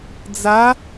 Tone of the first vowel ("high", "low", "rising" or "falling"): rising